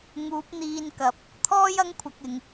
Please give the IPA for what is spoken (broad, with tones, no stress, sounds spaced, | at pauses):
ŋ uː˨˥ p̚ n̪ iː˧ n k ɐ˨˥ p̚ | t̪ʰ ɔː˥ j ɐ˥ ŋ kʷʰ ɐ˧ k̚ ɪ˨ ŋ